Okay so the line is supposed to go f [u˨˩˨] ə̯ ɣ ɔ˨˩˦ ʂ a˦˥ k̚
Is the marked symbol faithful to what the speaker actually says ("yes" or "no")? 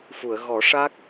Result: yes